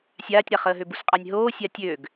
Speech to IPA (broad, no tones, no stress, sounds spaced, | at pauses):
sʲ aː tʲ ɾ a χ əː ɦ ø b u s qʼ a nʲ ɦ oː sʲ a tʲ ø ɡ